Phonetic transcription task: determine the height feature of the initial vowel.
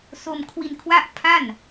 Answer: mid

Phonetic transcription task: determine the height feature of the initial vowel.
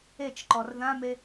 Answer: mid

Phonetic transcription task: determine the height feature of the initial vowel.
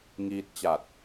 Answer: high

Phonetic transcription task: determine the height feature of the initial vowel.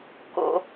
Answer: mid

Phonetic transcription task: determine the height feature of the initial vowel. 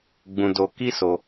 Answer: high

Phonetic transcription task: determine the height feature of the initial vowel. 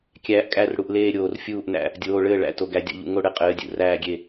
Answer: low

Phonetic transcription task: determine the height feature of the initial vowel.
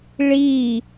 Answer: high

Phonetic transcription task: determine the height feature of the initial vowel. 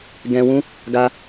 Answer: mid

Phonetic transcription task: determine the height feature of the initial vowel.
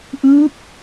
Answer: high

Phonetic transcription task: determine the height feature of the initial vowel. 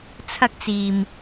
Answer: low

